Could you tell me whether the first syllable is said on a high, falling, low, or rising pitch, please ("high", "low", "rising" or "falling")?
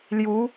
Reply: rising